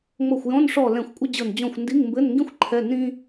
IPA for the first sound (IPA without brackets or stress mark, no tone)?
ŋ͡m